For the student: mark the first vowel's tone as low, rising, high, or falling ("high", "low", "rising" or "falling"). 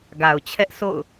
low